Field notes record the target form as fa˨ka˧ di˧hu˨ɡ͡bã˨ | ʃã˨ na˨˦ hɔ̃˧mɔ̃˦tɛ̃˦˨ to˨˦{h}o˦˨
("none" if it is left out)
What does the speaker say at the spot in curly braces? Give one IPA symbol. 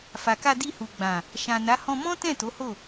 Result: h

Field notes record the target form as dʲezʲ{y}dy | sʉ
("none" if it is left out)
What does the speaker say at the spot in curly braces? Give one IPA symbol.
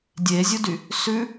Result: u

